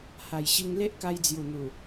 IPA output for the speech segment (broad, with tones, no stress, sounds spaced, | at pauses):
h a˨˩ j ɕ i˧ ŋ l e˦ ʔ k a˧ j d͡z j u˨˩ n̪ u˨˩